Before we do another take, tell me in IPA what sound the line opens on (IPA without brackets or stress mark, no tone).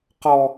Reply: q